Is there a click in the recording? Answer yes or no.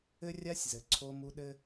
yes